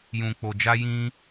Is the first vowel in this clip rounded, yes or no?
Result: yes